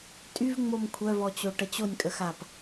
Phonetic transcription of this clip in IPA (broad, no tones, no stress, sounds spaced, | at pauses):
tʼ y v ŋ͡m o m kʷʰ œ v ɔ t͡ɕ o ʈ ə t͡ɕ o nʲ kʼ ə x a p